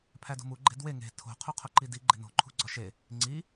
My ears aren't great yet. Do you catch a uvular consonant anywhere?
yes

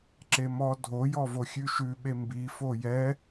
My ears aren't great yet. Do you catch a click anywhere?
yes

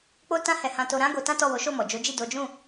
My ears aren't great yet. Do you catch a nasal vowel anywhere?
yes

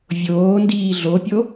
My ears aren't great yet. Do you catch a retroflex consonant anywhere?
no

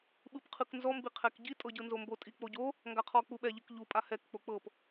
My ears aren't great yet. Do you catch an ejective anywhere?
yes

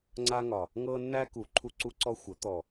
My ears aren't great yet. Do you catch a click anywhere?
yes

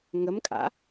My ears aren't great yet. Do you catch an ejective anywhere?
yes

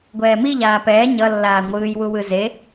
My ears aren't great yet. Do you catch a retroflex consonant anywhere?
no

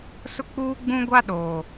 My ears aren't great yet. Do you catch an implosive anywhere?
yes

